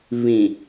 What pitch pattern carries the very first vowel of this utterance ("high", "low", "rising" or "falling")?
low